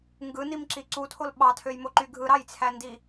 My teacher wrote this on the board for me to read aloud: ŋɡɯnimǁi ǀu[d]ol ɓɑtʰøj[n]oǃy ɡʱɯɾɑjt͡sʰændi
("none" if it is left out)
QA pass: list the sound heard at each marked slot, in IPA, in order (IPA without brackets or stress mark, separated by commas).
tʰ, m